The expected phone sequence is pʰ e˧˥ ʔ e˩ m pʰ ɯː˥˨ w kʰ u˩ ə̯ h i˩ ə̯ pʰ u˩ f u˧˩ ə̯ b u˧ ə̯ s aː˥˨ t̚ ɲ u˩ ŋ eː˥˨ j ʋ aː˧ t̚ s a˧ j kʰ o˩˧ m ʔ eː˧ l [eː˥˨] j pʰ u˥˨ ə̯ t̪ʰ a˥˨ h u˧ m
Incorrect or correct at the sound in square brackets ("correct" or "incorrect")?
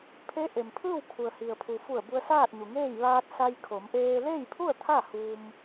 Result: correct